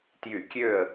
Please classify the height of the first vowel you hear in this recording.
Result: high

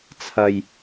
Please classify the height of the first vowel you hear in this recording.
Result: low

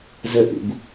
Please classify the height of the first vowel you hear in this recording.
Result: mid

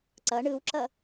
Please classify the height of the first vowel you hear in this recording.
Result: mid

